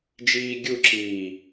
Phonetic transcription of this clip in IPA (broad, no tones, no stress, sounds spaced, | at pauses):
d͡ʒ iː ɡʲ u ǁ iː